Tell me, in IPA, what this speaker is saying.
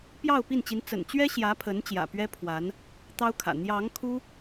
p j ɑ˥˧ ʊ̯ p i˥˩ n t͡ɕ i˧˥ n t͡s ə̰˨˩ n t͡ɕ ɥ ɛ˥ ɕ j ä˧˥ pʰ ə˧˥ n t͡ɕ j ä̰˨˩ p ɥ ɛ˥ pʰ w a˧˥ n | t̪ ɑ˥ ʊ̯ kʰ ä̰˨˩ n̪ j ɑ˧˥ ŋ kʰ u˥

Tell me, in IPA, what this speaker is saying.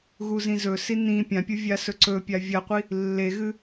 ɣ u z ĩ z ɵ s i n ĩ pʲ ã pʲ u vʲ a s ɵ ǀ ɵ pʲ a vʲ ɐ qʷ i | lː e ɣ ɨ

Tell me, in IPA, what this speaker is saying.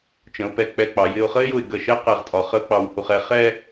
t͡ʃ ə̃˩˧ ʊ̯ p ɛ˧ k͡p ɛ˧˩ k͡p ɑ˩˧ j ɪ˥˧ ʊ̯ χ ə˥ ɪ̯ j ʊ˧˩ ɪ̯ ɡ ə˧˩ ʃ ɛ˥˧ q ɛ˧˩ ʁ tʼ ɒ˩˧ χ ə˥ ʊ̯ k͡p ɑ˧˩ w h u˧ χ ɛ˧ χ ɛ˥˧

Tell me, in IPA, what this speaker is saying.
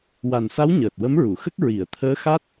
w a˨˩ n s a˧˥ w ɲ əː˨˩ t̚ w ə˧˥ m ɹ u˨˩˨ x ə˦˥ k̚ ɹ i˨˩˨ ə̯ t̪ʰ əː˧˥ x a˦˥ t̚

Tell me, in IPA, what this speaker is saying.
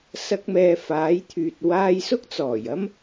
s ɐ˧ k̚ m ɛː˨ f aː˨˥ j t̪ʰ yː˨ t̚ w aː˧ j s ʊ˥ k̚ t͡s ɔː˨˩ j ɐ˥ m

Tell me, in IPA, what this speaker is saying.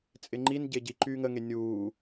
t͡sʼ ɪ ŋ͡ǃ i n ɟ e ɟ i ǃ yː ŋ ə ŋ e nʲ uː

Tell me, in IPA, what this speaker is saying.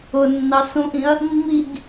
ʊ nː ɑ s ũ ʔ ĩ ɐ̯ | mː i ɡ

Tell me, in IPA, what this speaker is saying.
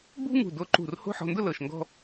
b ṳ˥ ŋ ṳ˧˩ d o˧ ǃ ṳ˧˩ r h o̤˥˧ ħ ɔ̤˧ n d ʊ˥˧ l ɤ˧˩ ʃ ŋ ɡ ɔ̤˥

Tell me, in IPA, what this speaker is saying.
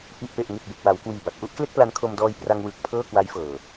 ʔ i˨˩ ʔ p e˨˩ ʔ ŋ e˨˩ k̚ b e˨˩ k̚ w a˩˦ w k w iː˨˩ b a˨˩ t̚ ʔ u˥˩ ʔ k l e˥˩ k̚ p l a˦˥ n kʰ o˧ m d ɔː˧ j p r a˧ ŋ w ɯː˨˩ k̚ pʰ ɤː˥˩ k w a˦˥ j f ɤː˨˩

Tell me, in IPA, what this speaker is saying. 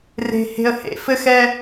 r e̤˨ h e̤˨ ə̯ h ḛ˨ f ɘ˦ x ɛ˦

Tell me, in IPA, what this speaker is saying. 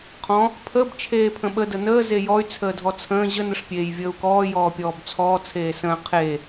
qʰ ɔ̃ | pʰ ə b t͡ʃʰ eː pʰ ə̃ ɓ ə d ə n əː z e j ɔ y̯ t͡sʰ əː dʱ ɔ t͡sʰ ə̃ː ʑ ə n ə ʂ pʲ eː j vʲ əː u̯ k ɔː j ɔː pʲ ɔː b t͡sʰ ɔː t͡sʰ eː s ə̃ː qʰ e

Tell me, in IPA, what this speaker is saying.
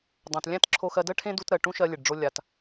dˤ õ˩ t lʲ æ̃˥ t ǁʰ o˧ x ɜ˧ d ɜ˥ ʈʰ ẽ˥ d u˧ t ɾ ɜ˩ ʈ ũ˥ ʃ ɜ˧ lʲ e˩ ɖ ɖ͡ʐ o˧ lʲ a˩ t

